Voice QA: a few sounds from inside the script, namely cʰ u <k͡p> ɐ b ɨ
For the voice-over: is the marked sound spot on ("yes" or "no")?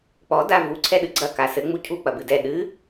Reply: yes